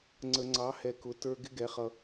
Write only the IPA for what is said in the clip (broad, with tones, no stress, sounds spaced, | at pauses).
ŋ͡ǀ ə˨ ŋ͡ǀ ɑ˨˦ h ɛ˨ k ʊ˨˦ t ə˞˧ ɡ ɪ˦ ɡ ɛ˨˦ χ ʌ˧